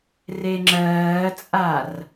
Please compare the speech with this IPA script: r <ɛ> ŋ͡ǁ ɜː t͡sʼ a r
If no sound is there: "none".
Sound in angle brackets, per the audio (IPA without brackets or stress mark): e